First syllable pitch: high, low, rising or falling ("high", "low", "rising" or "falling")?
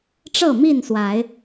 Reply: falling